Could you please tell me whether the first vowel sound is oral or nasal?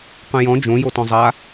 nasal